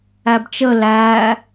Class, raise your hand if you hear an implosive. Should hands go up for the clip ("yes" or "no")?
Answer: no